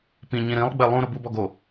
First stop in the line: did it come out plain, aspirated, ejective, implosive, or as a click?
plain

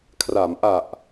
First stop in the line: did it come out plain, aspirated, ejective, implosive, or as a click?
aspirated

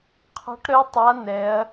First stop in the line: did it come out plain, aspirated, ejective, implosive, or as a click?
aspirated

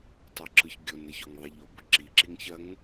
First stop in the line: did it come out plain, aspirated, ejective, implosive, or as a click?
plain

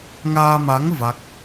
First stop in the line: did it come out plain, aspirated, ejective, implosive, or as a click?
plain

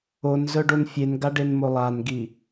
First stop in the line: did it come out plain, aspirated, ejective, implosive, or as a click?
plain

